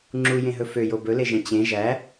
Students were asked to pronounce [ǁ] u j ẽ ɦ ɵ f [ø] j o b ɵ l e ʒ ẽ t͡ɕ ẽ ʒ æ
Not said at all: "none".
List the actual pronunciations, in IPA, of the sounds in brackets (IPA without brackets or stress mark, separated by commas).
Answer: ŋ͡ǁ, ø